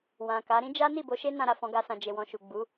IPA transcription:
wã˨ ka˨˦ ɾĩ˦d͡ʒa˦ni˦˨ bo˨˦ʃe˦nã˧ ɾa˨fɔ̃˧ɡa˧sã˨ d͡ʒe˨wɔ̃˨ʃu˨ ɡ͡bu˨˦

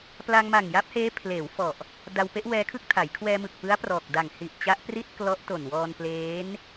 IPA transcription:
pla˧ŋ ma˨˩ŋja˦˥p̚heː˦˥ pʰleː˩˦wfɔ˨˩ʔ | da˧w pe˦˥ʔwɛː˧kʰɯ˥˩k̚tʰa˩˦j kʰwɛː˧mɯ˨˩k̚pɯ˦˥a̯ prɔː˨˩k̚da˨˩ŋ hi˨˩ʔt͡ɕa˦˥ʔpri˥˩t̚ klɔ˦˥ʔto˨˩nwɔː˧n pleː˦˥n

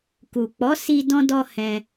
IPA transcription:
ku˨ k͡pɔ˨˦si˧ dɔ̃˦dɔ˦ hɛ̃˧

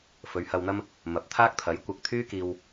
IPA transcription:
fɵ˨˧ɥhɐ˧wn̪ɐ˥m | mɐ˨p̚t̪ʰaː˥k̚t̪ʰɐ˨˥j kʷɐ˧k̚t̪ʰyː˥kiː˧w

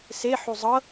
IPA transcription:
se ħuzˤɤ

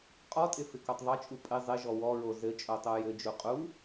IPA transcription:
qʼɔtʼɪ fɪkotˤðˤɘt͡ʃʼu pʼɪ zˤɪʒɔ wɔɹo zɘ t͡ʃʼotˤojɘd͡ʒu qʼu

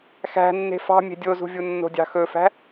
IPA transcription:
xæ̤ nːe̤fɑ̤ mʲe̤dʲozṳvʲu nːo̤dʲɑ̤xɵfæ̤

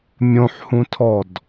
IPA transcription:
mʲõħhũtʰɔd

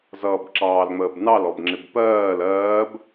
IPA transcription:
zʌːbǁɑːlŋ͡məːbnɑl ɔbŋ͡ǁɪbpɜːl ɜːb

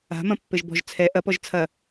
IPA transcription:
a̤mɐ̃pːɘʒ bɔ̤ʒ t͡sʰɛ ʔɐpɔʒ t͡sʰɐ

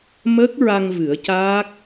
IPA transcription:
mə˦˥k̚ɹa˧ŋ vɨ˨˩˦ə̯caː˦˥k̚

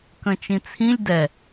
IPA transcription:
kə̃t͡ʃĩt͡sʰĩlʲ dɛ

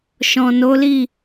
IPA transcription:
ʃɔ̃˨no˨˦li˦˨

